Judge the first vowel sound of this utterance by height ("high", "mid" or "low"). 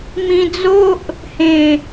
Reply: high